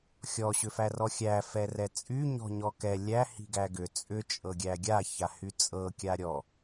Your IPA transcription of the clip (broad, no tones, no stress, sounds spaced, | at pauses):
xʲ ɔ ɕ ʏ f æ r ɔ xʲ æ f ɛ r ɛ t͡sʼ y ɲ ɔ̤ ɲ ɔ k ɛ lʲ æ h i̤ ɡ æ ɡ ʏ t͡sʼ ʏ t͡ʃʼ ɤ ɡʲ æ ɡʲ a ç a h y t͡sʼ ɤ kʲ a ɾʲ ɔ